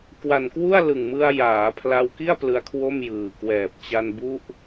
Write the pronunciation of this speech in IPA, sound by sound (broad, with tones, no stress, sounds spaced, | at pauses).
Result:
k w a˨˩ n k w u˥˩ a̯ l ɯ˨˩ ŋ m ɯ˧ a̯ j aː˩˦ pʰ l a˧ w k i˥˩ a̯ p l ɯ˦˥ a̯ kʰ w o˥˩ m j ɯː˨˩ k w ɛː˨˩ p̚ t͡ɕ a˧ n b u˦˥ ʔ